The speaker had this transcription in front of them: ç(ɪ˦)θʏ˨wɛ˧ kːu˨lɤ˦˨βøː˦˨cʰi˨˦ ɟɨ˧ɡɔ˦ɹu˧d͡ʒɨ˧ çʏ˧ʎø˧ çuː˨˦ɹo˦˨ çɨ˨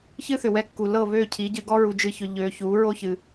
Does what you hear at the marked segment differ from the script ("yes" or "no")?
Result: yes